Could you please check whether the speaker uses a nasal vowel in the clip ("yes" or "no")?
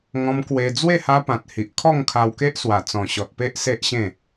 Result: yes